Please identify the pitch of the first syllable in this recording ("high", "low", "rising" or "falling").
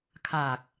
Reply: low